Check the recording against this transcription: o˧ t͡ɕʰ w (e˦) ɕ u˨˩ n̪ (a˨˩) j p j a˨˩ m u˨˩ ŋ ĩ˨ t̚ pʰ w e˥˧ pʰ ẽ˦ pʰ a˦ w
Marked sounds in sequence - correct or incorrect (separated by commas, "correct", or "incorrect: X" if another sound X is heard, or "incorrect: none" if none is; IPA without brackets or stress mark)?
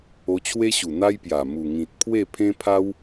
correct, incorrect: a˦